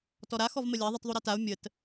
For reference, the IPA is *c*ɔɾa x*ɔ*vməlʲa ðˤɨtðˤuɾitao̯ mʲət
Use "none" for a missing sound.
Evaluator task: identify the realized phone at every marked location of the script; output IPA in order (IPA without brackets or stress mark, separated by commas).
t, ɔ